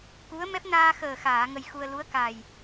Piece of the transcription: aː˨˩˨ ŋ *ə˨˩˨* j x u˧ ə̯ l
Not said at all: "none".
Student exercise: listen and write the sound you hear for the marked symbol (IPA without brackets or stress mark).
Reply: ə˧